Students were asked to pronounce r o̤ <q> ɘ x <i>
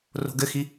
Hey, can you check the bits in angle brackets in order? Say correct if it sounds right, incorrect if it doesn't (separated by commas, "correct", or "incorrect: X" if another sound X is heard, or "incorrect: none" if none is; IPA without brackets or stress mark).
incorrect: ɡ, correct